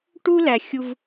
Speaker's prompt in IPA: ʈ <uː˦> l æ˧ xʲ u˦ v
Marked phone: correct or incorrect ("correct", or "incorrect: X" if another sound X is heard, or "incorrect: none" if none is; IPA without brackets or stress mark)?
incorrect: u˦